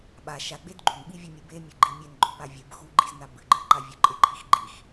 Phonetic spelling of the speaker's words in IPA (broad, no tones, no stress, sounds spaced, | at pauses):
ɓ a ʃ a ɡ͡b e d ɡ͡ǃ u n ɓ i vʲ o mʲ ɨ b e mʲ ɘ ɡ͡ǃ i mʲ e n ɡ͡ǃ o p a vʲ ɨ b x u ɡ͡ǃ i z n a b ɨ ɡ͡ǃ ɨ ǃ a vʲ o ǃʼ e ǃʰ i x ɡ͡ǃ i x